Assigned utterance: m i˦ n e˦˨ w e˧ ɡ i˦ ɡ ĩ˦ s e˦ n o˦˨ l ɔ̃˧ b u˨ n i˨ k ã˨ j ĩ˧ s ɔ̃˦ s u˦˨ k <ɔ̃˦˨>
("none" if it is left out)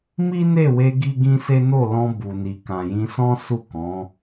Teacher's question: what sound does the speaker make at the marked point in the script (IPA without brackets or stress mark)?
ɔ̃˨˦